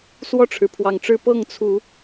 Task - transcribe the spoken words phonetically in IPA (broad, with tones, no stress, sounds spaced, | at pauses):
s w ɔ˥˨ ʈ͡ʂʰ ɻ̩˩ pʰ w ɑ˨˩ ŋ ʈ͡ʂ ɻ̩˥˨ p ɤ˥˨ ŋ t͡sʰ u˨˦